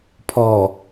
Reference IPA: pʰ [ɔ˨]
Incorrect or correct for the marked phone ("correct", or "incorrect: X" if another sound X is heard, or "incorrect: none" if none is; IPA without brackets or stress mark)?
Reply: correct